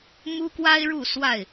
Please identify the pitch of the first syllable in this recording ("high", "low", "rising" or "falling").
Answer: high